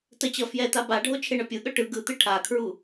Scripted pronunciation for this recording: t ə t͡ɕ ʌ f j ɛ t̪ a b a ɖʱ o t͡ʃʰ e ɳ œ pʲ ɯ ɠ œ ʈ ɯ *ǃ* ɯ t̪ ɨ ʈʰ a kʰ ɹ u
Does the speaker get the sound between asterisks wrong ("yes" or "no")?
yes